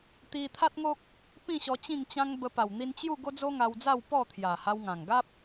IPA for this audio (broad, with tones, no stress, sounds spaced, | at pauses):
t̪ i˧ t̪ʰ a˦ t̚ ŋ o˦ k̚ | p ĩ˥˧ ɕ ɔ˧ t͡ɕ ĩ˥˧ ŋ t͡ɕ ã˦ ŋ b ə˧ p a˨˩ w n̪ i˧ n t͡ɕ j u˥˧ ɡ o˦ d͡z o˦ ŋ a˧ w d͡z a˥˧ w p ɔ˥˧ t̪ʰ j a˨˩ h a˧ w ŋ ã˨˩ ŋ ɡ a˦ p̚